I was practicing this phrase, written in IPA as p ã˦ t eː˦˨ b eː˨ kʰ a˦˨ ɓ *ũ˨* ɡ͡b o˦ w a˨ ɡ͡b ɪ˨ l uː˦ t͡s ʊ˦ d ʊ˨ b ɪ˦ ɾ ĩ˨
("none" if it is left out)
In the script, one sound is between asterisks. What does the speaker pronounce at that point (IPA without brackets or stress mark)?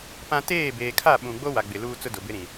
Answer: ũ˨